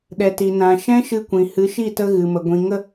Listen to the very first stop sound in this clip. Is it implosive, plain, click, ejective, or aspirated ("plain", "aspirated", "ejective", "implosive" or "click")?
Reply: implosive